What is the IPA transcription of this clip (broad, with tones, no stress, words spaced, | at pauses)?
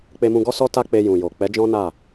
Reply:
k͡pe˧mũ˧ɡɔ˦sɔ˦ ta˦k͡pe˧ jũ˨jo˨ k͡pɛ˨˦d͡ʒɔ̃˦ na˦˨